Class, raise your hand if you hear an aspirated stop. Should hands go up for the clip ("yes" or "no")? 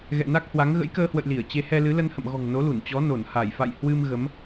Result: no